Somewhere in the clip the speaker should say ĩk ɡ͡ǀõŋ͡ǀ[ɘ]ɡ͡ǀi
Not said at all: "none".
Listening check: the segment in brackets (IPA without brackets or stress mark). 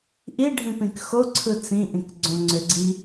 ø